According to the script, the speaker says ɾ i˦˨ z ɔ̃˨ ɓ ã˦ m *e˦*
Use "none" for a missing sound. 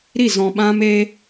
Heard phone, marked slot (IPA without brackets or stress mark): e˦